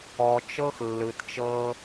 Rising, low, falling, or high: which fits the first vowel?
low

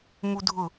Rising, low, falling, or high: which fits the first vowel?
high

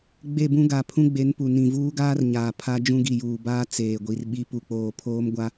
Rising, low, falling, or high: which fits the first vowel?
falling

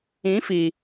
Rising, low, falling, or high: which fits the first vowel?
rising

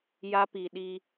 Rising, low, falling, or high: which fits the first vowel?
high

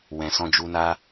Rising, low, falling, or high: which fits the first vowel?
low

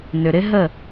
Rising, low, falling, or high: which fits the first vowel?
low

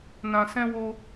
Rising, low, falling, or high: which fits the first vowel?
low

